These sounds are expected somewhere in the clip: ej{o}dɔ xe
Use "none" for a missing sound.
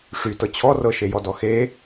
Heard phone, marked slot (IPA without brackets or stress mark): ɔ